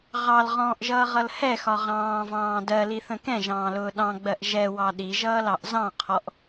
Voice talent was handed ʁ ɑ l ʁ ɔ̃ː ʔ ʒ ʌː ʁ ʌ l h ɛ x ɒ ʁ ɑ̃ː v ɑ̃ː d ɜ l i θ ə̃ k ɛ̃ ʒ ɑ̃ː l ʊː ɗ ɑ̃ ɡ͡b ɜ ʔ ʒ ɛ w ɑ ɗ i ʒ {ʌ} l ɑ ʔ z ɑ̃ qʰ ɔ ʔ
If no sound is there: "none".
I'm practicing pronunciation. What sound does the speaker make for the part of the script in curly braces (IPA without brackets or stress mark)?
ʌː